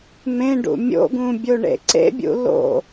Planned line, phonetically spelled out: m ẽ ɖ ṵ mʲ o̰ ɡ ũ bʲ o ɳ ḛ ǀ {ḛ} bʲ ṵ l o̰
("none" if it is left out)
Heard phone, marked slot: ḛ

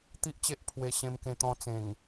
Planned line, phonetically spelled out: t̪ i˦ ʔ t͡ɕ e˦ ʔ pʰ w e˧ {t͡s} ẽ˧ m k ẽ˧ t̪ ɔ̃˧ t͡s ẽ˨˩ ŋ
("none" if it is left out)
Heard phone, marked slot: ɕ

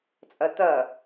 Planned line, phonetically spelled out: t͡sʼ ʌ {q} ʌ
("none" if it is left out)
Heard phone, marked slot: t̪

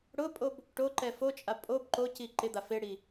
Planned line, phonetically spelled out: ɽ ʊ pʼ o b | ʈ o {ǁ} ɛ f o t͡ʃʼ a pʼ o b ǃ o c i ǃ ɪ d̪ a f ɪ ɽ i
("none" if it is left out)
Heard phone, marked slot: ǃ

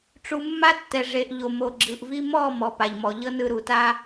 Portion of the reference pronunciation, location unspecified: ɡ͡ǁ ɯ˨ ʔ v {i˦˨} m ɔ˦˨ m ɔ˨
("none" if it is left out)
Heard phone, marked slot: i˦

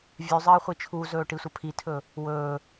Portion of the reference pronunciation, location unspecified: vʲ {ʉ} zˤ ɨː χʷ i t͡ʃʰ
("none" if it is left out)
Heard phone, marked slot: ʉ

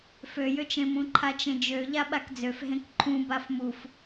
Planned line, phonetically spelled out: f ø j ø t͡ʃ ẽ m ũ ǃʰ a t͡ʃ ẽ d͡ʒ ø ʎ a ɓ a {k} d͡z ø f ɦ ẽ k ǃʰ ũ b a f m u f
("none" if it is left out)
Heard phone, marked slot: k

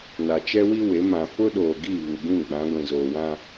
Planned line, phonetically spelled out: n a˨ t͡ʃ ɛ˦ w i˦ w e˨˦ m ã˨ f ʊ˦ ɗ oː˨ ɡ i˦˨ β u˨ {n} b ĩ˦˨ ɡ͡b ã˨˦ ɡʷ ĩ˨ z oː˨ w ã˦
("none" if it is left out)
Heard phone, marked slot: none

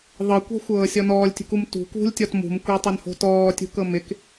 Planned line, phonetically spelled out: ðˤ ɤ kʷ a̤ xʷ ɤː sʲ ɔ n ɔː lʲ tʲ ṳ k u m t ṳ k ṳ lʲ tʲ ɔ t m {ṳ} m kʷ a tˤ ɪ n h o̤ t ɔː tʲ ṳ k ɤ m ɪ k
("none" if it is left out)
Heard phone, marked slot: ṳ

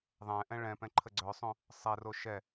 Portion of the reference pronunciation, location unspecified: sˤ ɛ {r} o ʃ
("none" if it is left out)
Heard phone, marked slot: r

